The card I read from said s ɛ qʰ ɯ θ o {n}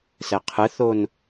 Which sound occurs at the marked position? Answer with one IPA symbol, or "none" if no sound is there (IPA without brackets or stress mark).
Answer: n